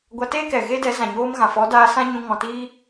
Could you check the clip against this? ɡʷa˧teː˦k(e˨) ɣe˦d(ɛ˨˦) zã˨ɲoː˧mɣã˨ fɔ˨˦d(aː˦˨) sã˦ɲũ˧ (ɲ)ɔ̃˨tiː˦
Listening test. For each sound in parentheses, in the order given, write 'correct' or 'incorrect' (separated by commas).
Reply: incorrect, correct, incorrect, incorrect